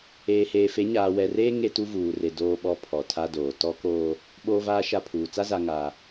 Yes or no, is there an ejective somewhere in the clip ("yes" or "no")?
no